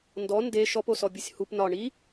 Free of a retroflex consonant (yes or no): no